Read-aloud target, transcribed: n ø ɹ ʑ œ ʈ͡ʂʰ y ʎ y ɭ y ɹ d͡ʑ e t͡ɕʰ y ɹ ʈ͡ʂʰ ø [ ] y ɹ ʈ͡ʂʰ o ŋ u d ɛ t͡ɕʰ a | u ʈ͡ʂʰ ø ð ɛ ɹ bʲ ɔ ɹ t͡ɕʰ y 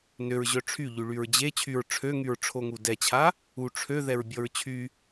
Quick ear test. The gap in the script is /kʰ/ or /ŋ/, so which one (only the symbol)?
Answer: ŋ